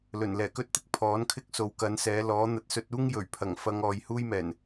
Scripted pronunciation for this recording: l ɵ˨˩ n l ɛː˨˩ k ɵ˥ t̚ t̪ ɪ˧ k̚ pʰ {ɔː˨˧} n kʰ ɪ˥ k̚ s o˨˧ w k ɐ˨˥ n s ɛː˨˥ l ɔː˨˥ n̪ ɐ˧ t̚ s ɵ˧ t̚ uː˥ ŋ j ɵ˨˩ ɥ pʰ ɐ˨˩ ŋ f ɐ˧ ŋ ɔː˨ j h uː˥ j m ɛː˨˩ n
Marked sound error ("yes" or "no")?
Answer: yes